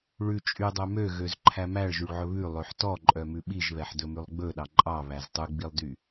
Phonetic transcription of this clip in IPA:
ɭ ʉ t͡ʃʼ y dˤ œ m ø ɣ ø z ǃʰ æ m æ ɭ ʒ y ɭ ʕ ɵ β ʉ lˠ ø ħ t ɔ ǃʼ œ m ʉ ɓ i ʒ β ɛ ħ d ɵ m ʉ lˠ ɡ͡b ɵ ɗ ɑ ǃʼ ɑ β æ z tˤ ʉ ɡ͡b i lˠ d y

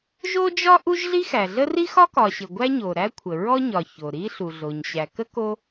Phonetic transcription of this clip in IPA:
ʒ o˥ d͡ʒ ɒ˥ ʔ u˥ ʒ ɮ i˥ x æ˩ ɮ ə˥ r i˥ x ɒ˥ k ɒ˩ ɕ ɘ˩ ɡʷ æ˥ ɲ o˩ ɾ æ˥ kʷʰ ə˩ ɹ ɔ˥ ɲ ɒ˩ ç o˩ ɾ i˥ ɬ u˩ ɮ o˩ ɲ ɕ æ˩ k ə˥ k o˥

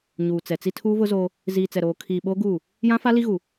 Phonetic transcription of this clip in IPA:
ɲ uː˨ t͡s ɛ˨ t͡s i˦ tʰ uː˦ v ʊ˦ z oː˦ | z iː˨ t͡s ɛ˨ ɾ oː˨ kʰ iː˨ ɓ oː˦ ɡ uː˦˨ | j ã˦ f a˦ l i˦ ɣ u˨

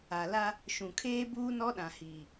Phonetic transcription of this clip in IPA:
a˨ l a˦ | ʃ ũ˨ kʰ eː˦ b uː˦ n ɔ˦ ɗ ã˨ h iː˨

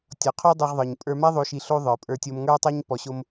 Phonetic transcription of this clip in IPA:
tʲ ɔ˨˦ qʰ o˦ dˤ i˧ ʁ ðˤ ə˞˨ ɲ pʼ ə˞˧ m a˦ ðˤ o˧ ʃ i˧ ɬ o˦ ðˤ ə˞˨ pʼ ə˞˧ tʲ o˧ m ŋ ə˞˦ tˤ a˦ ɲ p ɔ˨ ɕ o˧ m

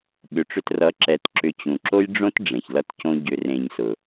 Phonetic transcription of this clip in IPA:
ɓ ʏ˨ ʈ͡ʂ ʏ˧ t r ʌ˨˦ ǁ ɛ˨ t ǁ ʏ˧ t͡ɕ ũ˨ ǁ o˦ j ɖ͡ʐ õ˦ t ɖ͡ʐ ẽ˨ ç l ʌ˦ t c õ˦ ɟ ʏ˧ r ẽ˧ ɲ s ʊ˨

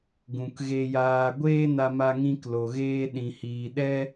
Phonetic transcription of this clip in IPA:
ɡ ũ˨ k ɣ e˧ j aː˧ ɡʷ eː˦ n a˧ m a˧ ŋ ĩ˧ k l o˨ ɣ eː˧ ɗ ĩ˨ h iː˨ ɗ ɛ˦

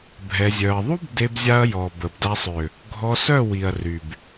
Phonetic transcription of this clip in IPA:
bʱ ɛ˧ zʲ œ˧ ɐ̯ ðˤ u˦ b d e˦ b zʲ a˦ ɐ̯ j ɔ˨ b ə˨ b d a˧ sˤ ø˨ | ɡʱ ɔ˧ s œ˦˨ w i˨ ɐ̯ r y˨ b

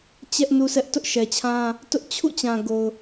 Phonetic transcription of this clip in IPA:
t͡ɕ ɛ˦ ʔ n u˦ s ɛ˦ ʔ t ʊ˦ ʔ ʃ ɛ˨ t͡ɕʰ ã˦ | t ʊ˦ ʔ t͡ɕʰ ṵ˦˨ t͡ɕ ã˨ ɡ o˨ ʊ̯

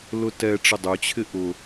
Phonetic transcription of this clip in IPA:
l ʊ t ɛ ʈ͡ʂ ɪ dˤ ʏ t͡ɕʰ ɪ ʔ ʊ

